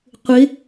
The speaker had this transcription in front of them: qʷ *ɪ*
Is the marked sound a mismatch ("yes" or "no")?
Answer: no